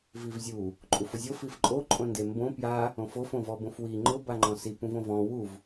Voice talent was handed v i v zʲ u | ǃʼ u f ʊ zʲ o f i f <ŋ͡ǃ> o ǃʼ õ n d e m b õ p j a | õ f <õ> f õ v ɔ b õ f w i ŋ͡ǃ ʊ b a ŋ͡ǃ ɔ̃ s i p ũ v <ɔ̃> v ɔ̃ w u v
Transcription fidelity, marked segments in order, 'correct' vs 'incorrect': incorrect: ǃʼ, incorrect: o, incorrect: õ

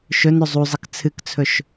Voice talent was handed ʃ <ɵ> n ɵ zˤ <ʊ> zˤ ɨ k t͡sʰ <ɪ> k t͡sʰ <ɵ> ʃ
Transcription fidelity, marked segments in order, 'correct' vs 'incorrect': correct, incorrect: u, incorrect: ɨ, correct

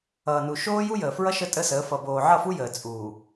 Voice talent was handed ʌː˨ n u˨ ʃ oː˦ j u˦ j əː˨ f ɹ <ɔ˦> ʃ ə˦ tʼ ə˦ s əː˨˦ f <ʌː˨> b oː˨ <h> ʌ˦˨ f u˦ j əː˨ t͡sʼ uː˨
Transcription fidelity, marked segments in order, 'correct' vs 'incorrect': incorrect: ʌ˦, incorrect: ʌ˨, incorrect: ʕ

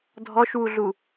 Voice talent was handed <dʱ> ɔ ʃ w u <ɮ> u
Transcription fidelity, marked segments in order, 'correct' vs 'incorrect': correct, correct

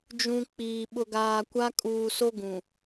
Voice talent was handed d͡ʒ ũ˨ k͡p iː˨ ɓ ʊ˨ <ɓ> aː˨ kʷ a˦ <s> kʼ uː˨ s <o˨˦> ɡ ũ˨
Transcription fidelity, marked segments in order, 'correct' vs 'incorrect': incorrect: ɡ, incorrect: none, incorrect: o˦

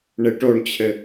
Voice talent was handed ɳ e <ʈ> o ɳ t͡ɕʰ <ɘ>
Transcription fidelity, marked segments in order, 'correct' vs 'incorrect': correct, correct

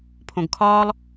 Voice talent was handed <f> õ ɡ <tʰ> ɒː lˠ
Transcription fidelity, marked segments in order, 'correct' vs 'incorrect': incorrect: pʰ, incorrect: kʰ

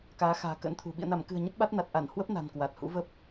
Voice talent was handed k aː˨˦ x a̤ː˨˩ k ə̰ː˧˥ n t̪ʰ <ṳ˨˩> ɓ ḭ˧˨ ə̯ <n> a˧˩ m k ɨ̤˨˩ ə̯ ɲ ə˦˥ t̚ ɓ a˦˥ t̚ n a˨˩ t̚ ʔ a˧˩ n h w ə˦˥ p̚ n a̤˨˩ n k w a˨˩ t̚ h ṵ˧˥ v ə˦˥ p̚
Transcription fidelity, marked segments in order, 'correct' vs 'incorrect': correct, correct

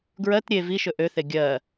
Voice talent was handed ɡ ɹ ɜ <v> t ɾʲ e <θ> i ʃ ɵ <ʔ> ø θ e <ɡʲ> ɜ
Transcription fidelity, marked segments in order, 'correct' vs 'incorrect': incorrect: none, incorrect: v, correct, correct

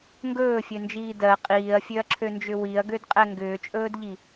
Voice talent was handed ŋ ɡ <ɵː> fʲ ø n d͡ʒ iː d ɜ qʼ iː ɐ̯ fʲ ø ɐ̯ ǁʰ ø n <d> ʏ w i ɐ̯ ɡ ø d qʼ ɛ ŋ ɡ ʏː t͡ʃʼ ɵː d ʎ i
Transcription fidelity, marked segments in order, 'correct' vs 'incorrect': correct, incorrect: d͡ʒ

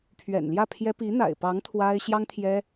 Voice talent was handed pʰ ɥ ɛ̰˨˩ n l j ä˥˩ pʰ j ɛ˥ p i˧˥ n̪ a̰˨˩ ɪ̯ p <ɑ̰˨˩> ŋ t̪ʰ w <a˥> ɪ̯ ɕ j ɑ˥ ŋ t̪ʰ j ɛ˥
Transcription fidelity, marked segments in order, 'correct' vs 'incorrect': incorrect: ɑ˧˥, correct

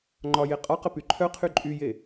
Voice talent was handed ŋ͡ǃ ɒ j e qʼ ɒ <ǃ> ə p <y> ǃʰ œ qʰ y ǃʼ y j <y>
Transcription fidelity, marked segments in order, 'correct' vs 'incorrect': incorrect: q, correct, incorrect: e

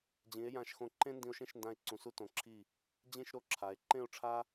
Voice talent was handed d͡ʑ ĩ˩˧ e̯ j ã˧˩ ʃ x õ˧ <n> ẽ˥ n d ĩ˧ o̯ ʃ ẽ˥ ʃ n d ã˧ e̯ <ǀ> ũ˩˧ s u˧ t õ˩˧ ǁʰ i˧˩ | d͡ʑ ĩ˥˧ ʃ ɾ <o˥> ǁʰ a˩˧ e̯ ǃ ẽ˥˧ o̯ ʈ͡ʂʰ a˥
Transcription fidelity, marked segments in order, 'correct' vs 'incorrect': incorrect: ǃ, correct, incorrect: o˥˧

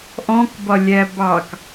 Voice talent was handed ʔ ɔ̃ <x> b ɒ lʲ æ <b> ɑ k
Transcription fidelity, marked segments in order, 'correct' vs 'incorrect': incorrect: k, correct

